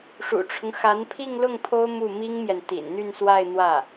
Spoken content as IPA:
ʂ ṵ˨˩ ʈ͡ʂʰ ʊ˦ ŋ x a˧˥ n pʰ i˥˧ ŋ l ʊ˥˩ ŋ pʰ o˥ ʊ̯ m u˥˩ m i˥ ŋ m j ɛ˨ n t̪ ḭ˨˩ n n̪ y˥˧ n s w a˥˧ ɪ̯ n̪ w ä˥˩

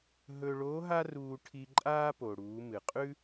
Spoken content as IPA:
ɦ ɵ˧ ɭ o˧˥ ɦ a˥ r uː˧ ʈʰ i˧ ǃʼ aː˥ p o˩ ɽ uː˩˧ m ɨ˩ qʼ ʉ˥

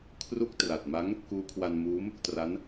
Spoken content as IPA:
kʰ r u˥˩ k̚ t r a˨˩ t̚ m a˦˥ ŋ | k uː˦˥ kʰ w a˧ n m uː˦˥ m | t r a˦˥ n

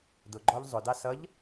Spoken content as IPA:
d ʊ ɡ͡ǃ ɔ ʎ zˤ ʊ d ɑ s ʌ ʎ

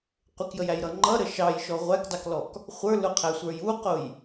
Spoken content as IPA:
qʷ ɪ k j ə j æ j ɾ ʌ ŋ͡ǃ ʌ ɾ ə ʃ ɑ j ʃ ɔ ʁʷ æ k d ɑ k l ɔ k | χʷ ə˞ l ʊ qʰ æ sʷ ə˞ j u q ʊ j

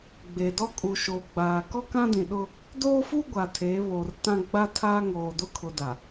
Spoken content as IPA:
ɡ͡b e˨ d ɔ˦ kʼ u˨ ʃ oː˨ ɡ͡b aː˨ k ɔ˦ k ã˦ d ĩ˨ ɗ ʊ˦ | d oː˦ f u˦ ɡʷ a˨ tʰ e˨˦ β o˨ r t ã˦ ɡ͡b a˦ tʰ aː˦ ŋ oː˨ d ʊ˦ kʰ ʊ˨ d a˨

